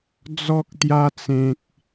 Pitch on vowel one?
high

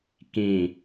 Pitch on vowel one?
low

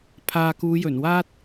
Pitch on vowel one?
low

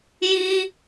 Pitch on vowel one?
high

